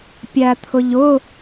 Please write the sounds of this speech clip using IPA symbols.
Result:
pʲ æ t̪ʰ ʊ ʎ ʊ

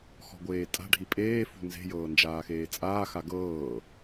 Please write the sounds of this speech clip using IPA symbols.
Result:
x ɔ̤ ɡʷ eː tʼ a̤ ɖʱ i pʼ eː f ṳ n z e̤ j ɤː n d͡ʒ aː x eː t͡sʼ aː x a ɡ ɤː

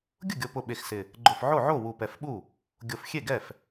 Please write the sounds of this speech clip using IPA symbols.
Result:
ɡʲ ʊ˥˩ ɡʲ o˨˩ p ʊ˨˩ ɓ e˨˩ x s ɪ˨˩ | ɡ͡ǃ ʊ˨˩ f ʕ o˥˩ ʕ o˥˩ w u˨˩ p ɛ˨˩ f ɓ u˥˩ | ɡʲ o˨˩ f xʲ e˥˩ ɡ ɛ˥˩ f

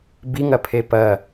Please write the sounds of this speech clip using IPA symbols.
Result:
b i ŋ ɐ pʰ e p ɐ

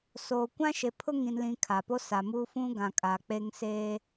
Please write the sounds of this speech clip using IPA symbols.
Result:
s oː˨ kʷ ã˦ ʃ e˨ pʰ ʊ˦ ŋ ĩ˨ n l ĩ˨ kʰ a˨ p o˦ s a˨ m uː˦ f ũ˦ ɡ ã˨ kʼ aː˨ k͡p e˦ ŋ s e˦

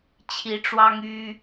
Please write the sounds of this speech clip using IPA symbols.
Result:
t͡ɕʰ i˨˦ ʈ͡ʂ w ɑ˦ ŋ y˦

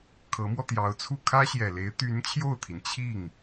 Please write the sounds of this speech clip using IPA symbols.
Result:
kʰ ɤ˧˥ m w ɔ˧ t̪ j ɑ˧˥ ʊ̯ t͡sʰ u˥˩ kʰ ä˥ ɕ j ɛ˨˩ l e˧˥ ɪ̯ t̪ y˧˥ n t͡ɕʰ j o˥˩ ʊ̯ t̪ʰ i˩ n t͡ɕʰ i˥˩ ŋ

